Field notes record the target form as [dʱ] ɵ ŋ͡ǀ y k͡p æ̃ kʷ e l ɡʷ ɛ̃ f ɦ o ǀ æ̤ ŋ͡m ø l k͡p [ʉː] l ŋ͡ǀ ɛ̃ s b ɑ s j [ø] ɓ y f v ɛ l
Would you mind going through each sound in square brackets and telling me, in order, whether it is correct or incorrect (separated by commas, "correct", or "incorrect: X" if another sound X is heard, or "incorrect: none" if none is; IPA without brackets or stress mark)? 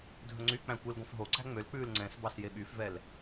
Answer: correct, correct, incorrect: e